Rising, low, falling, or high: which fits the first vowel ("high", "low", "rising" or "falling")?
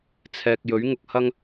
low